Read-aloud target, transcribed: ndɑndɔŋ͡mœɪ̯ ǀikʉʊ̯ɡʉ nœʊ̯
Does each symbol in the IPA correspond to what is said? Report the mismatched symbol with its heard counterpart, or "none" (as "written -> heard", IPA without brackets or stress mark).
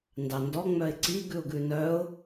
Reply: k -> ɡ